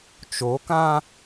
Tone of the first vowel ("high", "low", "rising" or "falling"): rising